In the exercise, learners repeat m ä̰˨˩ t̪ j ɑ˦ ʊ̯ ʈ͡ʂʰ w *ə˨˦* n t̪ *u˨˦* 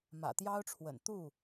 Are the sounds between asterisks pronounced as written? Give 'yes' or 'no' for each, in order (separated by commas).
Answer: no, no